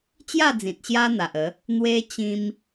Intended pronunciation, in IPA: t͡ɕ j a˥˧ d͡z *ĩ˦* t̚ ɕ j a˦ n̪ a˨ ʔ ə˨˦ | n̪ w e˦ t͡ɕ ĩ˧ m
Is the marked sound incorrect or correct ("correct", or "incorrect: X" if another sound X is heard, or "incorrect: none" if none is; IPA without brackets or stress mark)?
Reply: incorrect: ĩ˨